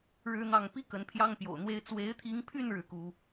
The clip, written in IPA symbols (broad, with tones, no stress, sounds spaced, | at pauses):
ɻ ɻ̩˥ n̪ ɑ˥˩ ŋ p i˥ k ə˧˥ n pʰ j ɑ˥ ŋ p j o̰˨˩ ʊ̯ n̪ w e˥ ɪ̯ t͡s w e˧˥ ɪ̯ t̪ʰ i˧˥ ŋ pʰ y˥˧ n ɻ ɻ̩˥˩ k u˥